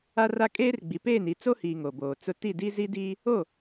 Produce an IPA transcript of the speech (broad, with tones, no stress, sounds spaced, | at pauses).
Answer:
a˦ r a˦ kʼ eː˦ r ɡ͡b i˨ p eː˦˨ n i˨˦ t͡s o˦ h iː˨ ŋ o˨ b oː˨ t͡s ʊ˦ t i˦˨ d i˦ z i˦ d iː˦ | o˦˨